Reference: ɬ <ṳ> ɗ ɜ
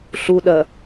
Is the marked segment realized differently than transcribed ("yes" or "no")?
yes